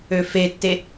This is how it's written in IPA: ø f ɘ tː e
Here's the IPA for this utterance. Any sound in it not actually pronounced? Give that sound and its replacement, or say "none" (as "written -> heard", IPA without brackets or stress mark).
ɘ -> e